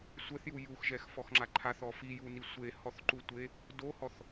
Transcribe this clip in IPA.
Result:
sʷ ɛ θ j u j u x ʒ ɛ x f ɔ x ŋ͡ǁ a ǃʰ a θ ɔ f i j u n i sʷ e h ɔ θ ǃ u tʷ e | d o h ɔ θ

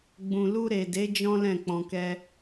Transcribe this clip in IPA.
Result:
ɡ͡b ũ˨ l u˧ ɾ e˨ d e˨˦ d͡ʒ ɔ̃˦ l ɛ̃˦˨ k͡p ɔ̃˧ k ɛ˦

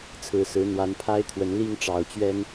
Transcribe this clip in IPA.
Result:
t͡sʰ ɹ̩˨˩ s ɹ̩˨˦ n̪ w a˨˦ n pʰ a˦ ɪ̯ t̪ʰ w ə˨˦ n l i˦ ŋ ʈ͡ʂ ɑ˨˩ ʊ̯ t͡ɕ ɥ ɛ˦ n

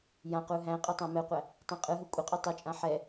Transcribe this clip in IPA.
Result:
j ã q u ɦ æ̃ qʼ e tˤ æ̃ m ɛ qʷ æ | tˤ ẽ qʼ ɯ ɦ ɯ kʷʼ ɪ qʼ u tˤ o t͡ʃʼ ã ħ ɛ

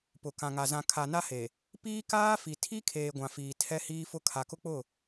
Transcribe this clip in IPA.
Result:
p ʊ˨ k ã˨ ŋ a˨ z ã˨ kʰ a˨ n a˦ h e˨ | p iː˦ k aː˦ f i˨ tʰ i˦ kʰ eː˨ ɡʷ ã˨ f iː˨ tʰ ɛ˦ h iː˦ f ʊ˦ kʰ a˨ k ʊ˦ k͡p ʊ˦˨

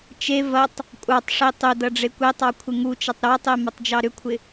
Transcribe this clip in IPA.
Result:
t͡ʃ e v ɐ tˤ | kʷʼ ɑ tˤ ʂ i tˤ ʏ d ɐ ɖ͡ʐ e kʷ e tˤ ɑ kʷʰ ɪ ŋ u t͡ʃ ɐ tˤ ɾ ɑ tˤ e m ɐ tˤ d͡ʒ ɑ ɾ ʏ kʷʰ ɪ

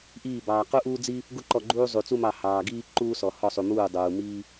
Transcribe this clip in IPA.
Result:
ʔ iː˧˩ b ɑː˩ q u˦ ʔ uː˦ d͡z i˦ | ɡ u˦ ǃ ɔ˧˩ ɡ͡ǃ uː˦ zˤ u˩ t͡s u˦ m ɑ˧˩ h ɑː˩ ɡ iː˦ ǃ uː˦ s ɔ˩ h ɔ˧˩ sˤ u˩ m uː˧˩ dˤ uː˩ m iː˦

